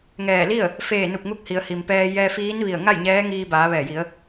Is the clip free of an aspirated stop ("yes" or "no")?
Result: yes